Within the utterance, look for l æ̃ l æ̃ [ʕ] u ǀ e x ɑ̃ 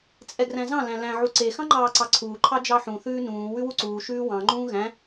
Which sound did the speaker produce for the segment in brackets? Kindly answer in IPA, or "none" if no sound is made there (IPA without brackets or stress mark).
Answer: ʕ